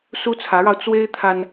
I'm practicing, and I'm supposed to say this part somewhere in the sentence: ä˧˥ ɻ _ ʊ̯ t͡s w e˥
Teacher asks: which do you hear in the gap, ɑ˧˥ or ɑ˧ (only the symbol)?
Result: ɑ˧